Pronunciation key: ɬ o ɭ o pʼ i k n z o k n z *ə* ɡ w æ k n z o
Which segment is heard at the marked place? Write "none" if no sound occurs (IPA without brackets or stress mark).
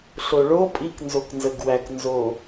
ə